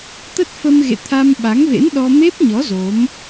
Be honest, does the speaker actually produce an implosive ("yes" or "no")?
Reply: yes